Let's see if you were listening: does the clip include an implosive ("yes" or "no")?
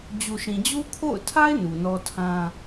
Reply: no